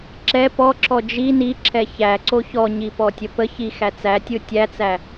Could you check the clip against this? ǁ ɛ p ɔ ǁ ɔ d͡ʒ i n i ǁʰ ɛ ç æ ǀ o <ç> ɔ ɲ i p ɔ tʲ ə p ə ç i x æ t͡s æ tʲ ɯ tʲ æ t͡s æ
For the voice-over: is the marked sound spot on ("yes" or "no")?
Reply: yes